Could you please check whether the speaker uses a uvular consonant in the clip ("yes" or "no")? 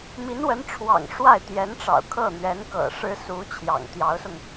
no